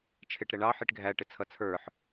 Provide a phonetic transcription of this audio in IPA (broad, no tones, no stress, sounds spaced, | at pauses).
t͡ʃʰ ɪ ʈ ɾ ɛ ɳ ɑ ħ i ʈ ɡʱ æ ʈ ɪ t͡sʰ ʌ t͡sʰ ə˞ ħ